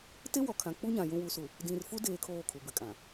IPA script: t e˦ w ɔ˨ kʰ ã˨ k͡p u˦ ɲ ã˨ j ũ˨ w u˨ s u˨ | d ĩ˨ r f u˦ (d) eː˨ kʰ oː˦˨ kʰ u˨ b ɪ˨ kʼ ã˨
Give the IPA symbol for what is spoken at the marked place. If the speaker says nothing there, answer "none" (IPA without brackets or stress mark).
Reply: d